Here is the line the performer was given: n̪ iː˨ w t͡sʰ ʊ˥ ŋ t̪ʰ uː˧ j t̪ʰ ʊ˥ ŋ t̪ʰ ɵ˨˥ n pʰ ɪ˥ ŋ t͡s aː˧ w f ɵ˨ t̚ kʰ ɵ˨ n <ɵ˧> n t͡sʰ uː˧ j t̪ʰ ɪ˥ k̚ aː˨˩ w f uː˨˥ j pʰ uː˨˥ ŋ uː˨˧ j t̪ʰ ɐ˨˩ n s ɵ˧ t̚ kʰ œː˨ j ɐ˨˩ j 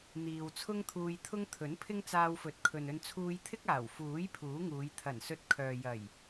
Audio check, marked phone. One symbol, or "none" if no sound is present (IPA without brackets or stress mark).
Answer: ɵ˧